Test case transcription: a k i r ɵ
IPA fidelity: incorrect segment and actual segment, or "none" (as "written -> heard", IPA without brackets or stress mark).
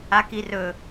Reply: none